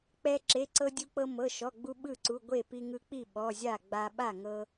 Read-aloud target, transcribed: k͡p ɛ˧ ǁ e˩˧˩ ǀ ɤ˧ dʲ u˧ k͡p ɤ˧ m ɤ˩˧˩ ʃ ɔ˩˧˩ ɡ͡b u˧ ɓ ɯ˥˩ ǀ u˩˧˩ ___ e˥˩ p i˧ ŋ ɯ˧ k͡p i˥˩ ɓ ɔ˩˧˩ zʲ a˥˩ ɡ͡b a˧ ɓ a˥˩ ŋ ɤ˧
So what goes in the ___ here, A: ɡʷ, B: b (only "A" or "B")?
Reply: A